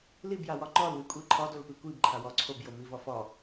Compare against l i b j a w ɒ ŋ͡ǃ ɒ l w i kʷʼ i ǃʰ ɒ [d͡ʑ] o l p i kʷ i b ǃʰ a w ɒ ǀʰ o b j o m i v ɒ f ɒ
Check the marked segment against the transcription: incorrect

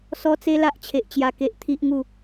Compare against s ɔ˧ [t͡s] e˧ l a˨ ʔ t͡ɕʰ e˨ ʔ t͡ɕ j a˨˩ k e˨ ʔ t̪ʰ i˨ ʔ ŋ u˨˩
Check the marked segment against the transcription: correct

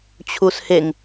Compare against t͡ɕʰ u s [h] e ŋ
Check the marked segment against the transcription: correct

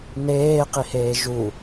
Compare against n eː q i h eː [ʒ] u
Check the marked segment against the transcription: correct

